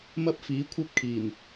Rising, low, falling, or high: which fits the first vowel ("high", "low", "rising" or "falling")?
high